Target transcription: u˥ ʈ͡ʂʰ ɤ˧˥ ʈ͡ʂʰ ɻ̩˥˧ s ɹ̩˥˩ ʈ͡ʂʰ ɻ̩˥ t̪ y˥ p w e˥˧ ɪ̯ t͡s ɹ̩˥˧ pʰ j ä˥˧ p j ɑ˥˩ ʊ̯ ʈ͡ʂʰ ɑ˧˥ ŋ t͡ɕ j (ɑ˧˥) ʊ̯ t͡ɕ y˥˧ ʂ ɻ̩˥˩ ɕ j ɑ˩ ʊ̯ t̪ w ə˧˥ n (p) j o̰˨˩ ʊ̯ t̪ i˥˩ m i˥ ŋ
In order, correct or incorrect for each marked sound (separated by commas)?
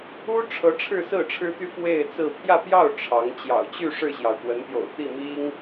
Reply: incorrect, correct